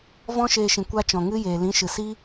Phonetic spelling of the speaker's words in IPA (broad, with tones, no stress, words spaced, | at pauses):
vɔ̃˦ʃeː˧ʃĩ˨ kʷa˦t͡ʃɔ̃˨ ŋɨ˦jeː˨ lĩ˨˦ʃɨ˨si˦